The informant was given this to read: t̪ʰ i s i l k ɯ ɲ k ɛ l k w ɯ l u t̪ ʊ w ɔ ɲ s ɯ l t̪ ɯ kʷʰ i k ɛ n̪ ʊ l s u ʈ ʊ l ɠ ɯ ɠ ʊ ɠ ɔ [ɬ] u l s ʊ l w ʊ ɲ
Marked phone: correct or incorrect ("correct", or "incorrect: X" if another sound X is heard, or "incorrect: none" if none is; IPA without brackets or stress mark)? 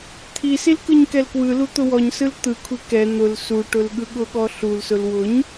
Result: correct